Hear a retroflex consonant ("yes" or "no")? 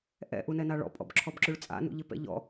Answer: yes